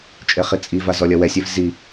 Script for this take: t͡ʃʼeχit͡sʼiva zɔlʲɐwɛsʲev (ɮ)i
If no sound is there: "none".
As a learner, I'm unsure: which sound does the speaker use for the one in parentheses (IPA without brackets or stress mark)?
z